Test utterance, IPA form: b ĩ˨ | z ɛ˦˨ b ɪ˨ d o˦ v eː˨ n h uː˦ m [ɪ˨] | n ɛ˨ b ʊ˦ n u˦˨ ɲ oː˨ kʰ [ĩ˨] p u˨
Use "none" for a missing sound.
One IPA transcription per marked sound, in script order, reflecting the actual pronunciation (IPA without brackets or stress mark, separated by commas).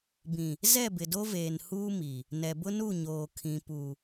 i˨, ĩ˨